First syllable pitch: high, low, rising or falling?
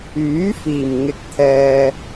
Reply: rising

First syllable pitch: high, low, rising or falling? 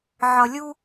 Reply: low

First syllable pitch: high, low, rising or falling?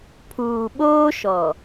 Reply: low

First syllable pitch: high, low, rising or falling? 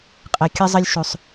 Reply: high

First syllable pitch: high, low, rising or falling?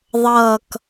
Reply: falling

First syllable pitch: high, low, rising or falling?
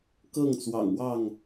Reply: falling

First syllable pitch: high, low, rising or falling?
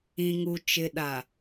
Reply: low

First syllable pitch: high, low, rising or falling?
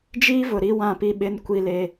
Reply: high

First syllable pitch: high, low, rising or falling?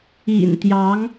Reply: low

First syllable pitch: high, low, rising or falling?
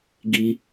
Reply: low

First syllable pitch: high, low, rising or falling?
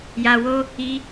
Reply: low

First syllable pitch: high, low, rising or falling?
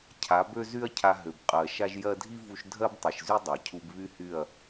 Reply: rising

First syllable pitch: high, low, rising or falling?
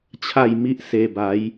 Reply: falling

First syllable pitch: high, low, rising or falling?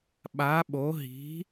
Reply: rising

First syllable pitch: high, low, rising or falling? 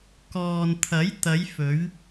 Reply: low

